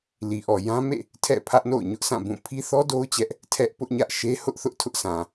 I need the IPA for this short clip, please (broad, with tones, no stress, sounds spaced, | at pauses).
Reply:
l i˨ ʔ ɔ˨ j ã˦ m ḛ˦˨ | tʰ ɛ̰˦˨ pʰ ä˦ ʔ n o̰˦˨ ʊ̯ ɲ ʊ˦ ʔ s ã˦˨ b ũ˦˨ pʰ i˦ θ ɔ˦ d o˦ ʊ̯ t͡ɕ ɛ˦ ʔ | tʰ ɛ˦ ʔ p ʊ˦ ʔ ɲ ä˦ ʔ ʃ e˦ h ʊ˦ ʔ θ ʊ˦ ʔ tʰ ʊ˦ ʔ s ã˨